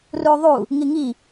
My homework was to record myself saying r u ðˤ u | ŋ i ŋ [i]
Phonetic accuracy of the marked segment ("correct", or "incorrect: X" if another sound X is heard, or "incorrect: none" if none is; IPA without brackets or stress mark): correct